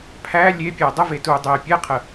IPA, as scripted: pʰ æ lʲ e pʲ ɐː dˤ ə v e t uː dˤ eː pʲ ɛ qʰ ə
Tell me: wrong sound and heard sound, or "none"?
none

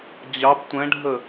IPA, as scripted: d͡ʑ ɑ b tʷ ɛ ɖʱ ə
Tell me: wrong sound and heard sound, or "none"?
ɛ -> ɛ̃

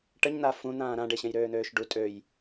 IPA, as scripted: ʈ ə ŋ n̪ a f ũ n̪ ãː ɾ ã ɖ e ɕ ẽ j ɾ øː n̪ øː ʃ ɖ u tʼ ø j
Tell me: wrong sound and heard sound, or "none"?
ŋ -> ɲ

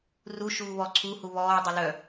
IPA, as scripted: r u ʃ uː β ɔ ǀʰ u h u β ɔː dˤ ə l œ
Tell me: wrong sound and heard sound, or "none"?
none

